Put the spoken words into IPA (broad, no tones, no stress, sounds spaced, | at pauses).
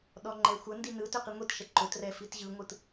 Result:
ɗ ɔ ŋ͡ǃ ɛ xʷ ə n d i n ɯ t ø q i ŋʷ i t ʃ ɛ ǃ ʊ t r ɛ f i t ʑ ɯ ŋʷ ɯ t